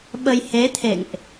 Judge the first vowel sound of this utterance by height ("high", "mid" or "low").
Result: mid